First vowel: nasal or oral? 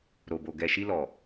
oral